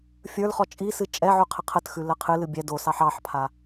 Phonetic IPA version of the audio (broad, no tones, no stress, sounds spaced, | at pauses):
fʲ ə˞ l χ ɔ t͡ʃʼ i s ɨ t͡ʃʼ ɛ ʕ ʉ qʰ ə qʰ ə t x ʉ l ə qʰ ɨ l ɨ bʲ ɛ d o s ɑ ħ ɑ ħ pʰ a